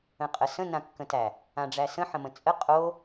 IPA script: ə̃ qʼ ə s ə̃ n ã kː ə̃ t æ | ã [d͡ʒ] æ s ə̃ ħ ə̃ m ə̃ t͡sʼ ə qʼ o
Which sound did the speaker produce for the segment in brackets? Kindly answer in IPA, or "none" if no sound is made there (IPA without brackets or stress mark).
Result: ɖ͡ʐ